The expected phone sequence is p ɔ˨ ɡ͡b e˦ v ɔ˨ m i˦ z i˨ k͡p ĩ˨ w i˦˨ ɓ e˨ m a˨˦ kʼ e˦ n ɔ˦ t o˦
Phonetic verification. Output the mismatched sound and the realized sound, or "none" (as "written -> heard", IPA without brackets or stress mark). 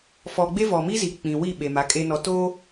p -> f